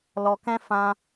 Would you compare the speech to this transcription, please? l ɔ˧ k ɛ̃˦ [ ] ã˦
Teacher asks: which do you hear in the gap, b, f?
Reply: f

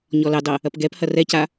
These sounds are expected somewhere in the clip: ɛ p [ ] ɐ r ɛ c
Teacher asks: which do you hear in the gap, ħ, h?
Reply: h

